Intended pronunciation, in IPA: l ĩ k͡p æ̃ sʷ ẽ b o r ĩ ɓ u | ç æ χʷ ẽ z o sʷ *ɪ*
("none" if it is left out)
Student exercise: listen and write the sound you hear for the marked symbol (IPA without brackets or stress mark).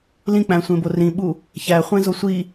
i